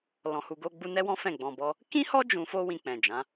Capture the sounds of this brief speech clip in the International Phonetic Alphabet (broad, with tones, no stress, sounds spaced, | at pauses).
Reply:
l ɔ̃˧ h u˧ ɡ o˦ ɡ͡b u˦ n ɛ˦ w ɔ̃˦ f ɛ̃˦˨ ɡ͡b ɔ̃˧ b ɔ˦ | k ĩ˦ h ɔ˦ d͡ʒ ũ˧ f o˦ w ĩ˧ k͡p ɛ̃˨ d͡ʒ ã˨˦